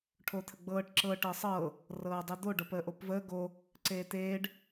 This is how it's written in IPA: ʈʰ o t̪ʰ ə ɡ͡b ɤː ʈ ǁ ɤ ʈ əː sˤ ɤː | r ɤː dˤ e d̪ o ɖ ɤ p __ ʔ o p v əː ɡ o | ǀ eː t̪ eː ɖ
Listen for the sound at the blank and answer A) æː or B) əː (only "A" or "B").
B